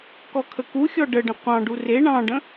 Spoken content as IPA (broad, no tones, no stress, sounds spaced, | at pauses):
k ɔ kʰ ə k u xʲ ɔ ɖ ə ɖ ə̃ qʷ ɑ̃ ɖ u r e ɳ ɑ̃ ɖ ə̃